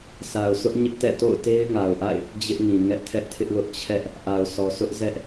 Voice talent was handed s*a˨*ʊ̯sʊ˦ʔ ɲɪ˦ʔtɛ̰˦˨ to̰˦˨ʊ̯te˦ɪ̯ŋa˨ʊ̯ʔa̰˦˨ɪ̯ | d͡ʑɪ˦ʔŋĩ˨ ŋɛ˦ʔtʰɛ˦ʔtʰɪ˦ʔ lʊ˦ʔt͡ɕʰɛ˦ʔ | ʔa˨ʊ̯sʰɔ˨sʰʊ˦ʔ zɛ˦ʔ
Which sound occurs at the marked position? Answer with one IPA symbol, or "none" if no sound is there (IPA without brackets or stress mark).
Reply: a˨